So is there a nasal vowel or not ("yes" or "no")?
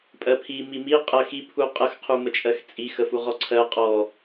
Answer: no